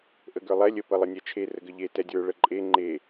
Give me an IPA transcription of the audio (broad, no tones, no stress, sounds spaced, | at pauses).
ʔ ə ɡ ə˞ lˠ ɛ lʲ ə p ə lˠ ə nʲ ɛ t͡ʃʰ e r ə ɡ ə ʎ e t ɛ dʲ ə˞ ɭ ə ǃʼ e ŋ͡ǃ e